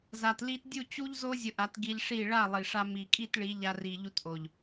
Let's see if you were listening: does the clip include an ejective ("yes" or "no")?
yes